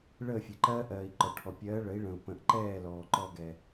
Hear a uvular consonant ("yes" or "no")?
no